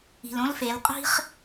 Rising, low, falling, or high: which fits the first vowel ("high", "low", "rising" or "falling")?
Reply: low